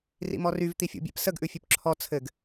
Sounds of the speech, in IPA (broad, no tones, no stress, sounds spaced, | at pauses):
r ḭ m ɔ r y v t̪ i fʲ ṵ bʲ ɛ̰ p s ə ɡ ʔ ʉ fʲ ʉ p ǁʰ ɔ t͡sʰ ɘ ɡ